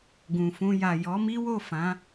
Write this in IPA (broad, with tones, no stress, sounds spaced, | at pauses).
ɡ ũ˨ f ũ˧ j a˨ j ɔ˨˦ m i˦ w o˦˨ f ã˨˦